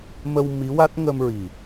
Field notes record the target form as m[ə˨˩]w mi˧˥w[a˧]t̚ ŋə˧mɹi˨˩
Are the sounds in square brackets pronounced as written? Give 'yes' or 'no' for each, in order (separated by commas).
no, no